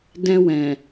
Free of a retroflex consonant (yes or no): yes